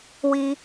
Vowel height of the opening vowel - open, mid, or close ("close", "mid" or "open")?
close